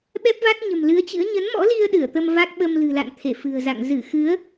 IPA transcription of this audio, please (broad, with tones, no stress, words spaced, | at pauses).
ɓɛ˦˥p̚va˦˥t̚ɲə̤˨˩m lɨ˨˦ə̯t͡ɕɨ̰˧˥ə̯ ɲə˨˦nmɔ̰˧˥li˧ə̯ ɗɨ˧˩ə̯t̪ə˧mva˦˥k̚ ɓə˧mlɨ̤˨˩la̰˧˨n t̪ʰe˧˩ fɨ̤˨˩ə̯za̰˧˨ŋ zɨ˧˩ xɨ˨˦ə̯